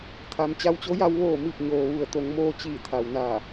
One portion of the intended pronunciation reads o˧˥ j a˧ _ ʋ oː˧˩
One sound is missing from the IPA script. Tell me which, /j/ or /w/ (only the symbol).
w